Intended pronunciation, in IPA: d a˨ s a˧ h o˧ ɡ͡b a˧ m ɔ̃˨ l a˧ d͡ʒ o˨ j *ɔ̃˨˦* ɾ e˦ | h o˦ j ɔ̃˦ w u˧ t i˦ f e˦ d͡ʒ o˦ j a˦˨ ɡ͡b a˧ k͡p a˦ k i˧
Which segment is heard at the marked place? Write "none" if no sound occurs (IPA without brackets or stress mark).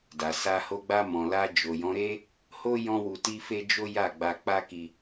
ɔ̃˨˦